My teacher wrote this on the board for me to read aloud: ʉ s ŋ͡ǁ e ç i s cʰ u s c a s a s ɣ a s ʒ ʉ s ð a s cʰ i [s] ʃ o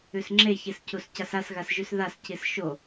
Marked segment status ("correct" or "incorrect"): correct